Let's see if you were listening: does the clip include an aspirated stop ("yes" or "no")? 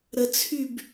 yes